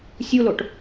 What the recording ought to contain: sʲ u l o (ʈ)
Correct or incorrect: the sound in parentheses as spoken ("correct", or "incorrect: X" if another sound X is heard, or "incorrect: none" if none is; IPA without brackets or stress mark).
correct